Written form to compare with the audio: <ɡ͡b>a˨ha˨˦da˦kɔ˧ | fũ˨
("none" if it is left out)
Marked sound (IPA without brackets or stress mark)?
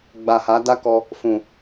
ɡ͡b